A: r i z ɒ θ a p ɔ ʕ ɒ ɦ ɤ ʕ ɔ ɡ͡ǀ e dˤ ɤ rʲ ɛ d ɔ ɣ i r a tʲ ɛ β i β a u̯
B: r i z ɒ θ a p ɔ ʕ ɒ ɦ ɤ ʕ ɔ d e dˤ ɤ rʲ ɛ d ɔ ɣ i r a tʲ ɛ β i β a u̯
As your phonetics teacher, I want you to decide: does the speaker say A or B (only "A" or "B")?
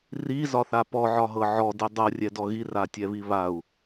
B